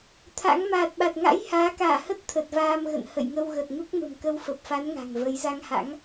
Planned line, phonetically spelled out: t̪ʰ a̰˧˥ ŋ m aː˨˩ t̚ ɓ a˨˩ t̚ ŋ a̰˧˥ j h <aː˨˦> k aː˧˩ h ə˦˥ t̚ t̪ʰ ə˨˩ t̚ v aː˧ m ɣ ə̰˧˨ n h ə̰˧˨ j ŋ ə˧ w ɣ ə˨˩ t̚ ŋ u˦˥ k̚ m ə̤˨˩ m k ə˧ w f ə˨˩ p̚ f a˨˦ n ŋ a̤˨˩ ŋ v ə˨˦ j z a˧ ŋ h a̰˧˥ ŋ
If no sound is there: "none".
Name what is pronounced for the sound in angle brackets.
aː˨˦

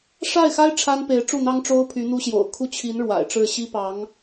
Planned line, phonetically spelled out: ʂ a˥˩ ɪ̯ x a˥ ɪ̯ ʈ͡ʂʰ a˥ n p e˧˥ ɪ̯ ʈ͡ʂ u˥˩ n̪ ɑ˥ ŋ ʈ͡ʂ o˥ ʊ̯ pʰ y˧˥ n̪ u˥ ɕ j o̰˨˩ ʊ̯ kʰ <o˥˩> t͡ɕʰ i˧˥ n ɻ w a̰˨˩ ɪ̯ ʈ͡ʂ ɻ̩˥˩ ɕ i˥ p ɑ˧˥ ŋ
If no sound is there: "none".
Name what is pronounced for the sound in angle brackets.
u˥˩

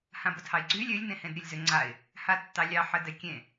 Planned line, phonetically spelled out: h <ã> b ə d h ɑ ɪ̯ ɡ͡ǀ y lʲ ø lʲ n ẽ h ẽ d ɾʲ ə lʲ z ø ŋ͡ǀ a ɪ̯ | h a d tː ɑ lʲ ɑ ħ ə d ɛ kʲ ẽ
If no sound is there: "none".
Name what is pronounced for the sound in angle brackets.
ã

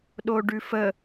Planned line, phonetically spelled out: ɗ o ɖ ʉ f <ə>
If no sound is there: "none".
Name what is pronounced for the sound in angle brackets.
ə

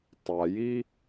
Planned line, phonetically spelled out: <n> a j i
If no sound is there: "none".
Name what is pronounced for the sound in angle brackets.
tˤ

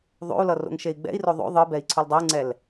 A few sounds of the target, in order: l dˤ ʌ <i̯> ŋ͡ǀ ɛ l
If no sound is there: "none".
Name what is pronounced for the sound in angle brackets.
u̯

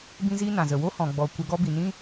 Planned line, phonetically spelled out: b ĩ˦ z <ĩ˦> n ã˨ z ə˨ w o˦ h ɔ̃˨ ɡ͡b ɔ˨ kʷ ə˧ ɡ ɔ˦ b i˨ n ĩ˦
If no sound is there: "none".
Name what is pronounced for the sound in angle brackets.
i˦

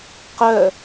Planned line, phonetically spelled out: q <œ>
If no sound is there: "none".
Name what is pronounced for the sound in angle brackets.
œ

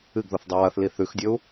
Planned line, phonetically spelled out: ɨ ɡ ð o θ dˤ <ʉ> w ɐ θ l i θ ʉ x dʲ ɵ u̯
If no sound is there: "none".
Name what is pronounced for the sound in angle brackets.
ʉ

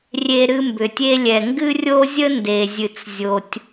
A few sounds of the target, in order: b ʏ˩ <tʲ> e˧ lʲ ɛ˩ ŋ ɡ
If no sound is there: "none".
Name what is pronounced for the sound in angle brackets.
tʲ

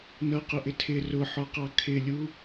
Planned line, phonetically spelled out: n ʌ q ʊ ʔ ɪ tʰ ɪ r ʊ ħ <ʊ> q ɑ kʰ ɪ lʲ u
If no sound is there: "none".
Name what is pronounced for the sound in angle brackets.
ɔ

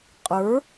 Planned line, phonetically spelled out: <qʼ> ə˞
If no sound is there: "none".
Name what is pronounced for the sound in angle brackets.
qʼ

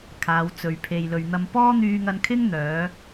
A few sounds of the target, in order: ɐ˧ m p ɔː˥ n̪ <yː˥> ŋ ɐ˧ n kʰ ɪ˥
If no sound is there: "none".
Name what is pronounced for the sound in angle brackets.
yː˧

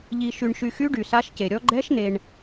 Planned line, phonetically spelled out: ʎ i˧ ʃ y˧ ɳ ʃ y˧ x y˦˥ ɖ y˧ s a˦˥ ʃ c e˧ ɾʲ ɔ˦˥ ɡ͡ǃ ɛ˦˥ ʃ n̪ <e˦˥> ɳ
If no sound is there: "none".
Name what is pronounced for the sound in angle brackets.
e˧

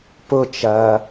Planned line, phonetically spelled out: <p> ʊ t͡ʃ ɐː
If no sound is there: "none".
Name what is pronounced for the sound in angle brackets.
p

